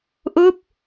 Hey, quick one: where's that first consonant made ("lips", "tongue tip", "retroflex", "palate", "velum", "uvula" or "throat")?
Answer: throat